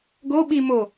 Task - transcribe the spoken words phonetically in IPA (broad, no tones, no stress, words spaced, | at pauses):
ɡo ɓi mo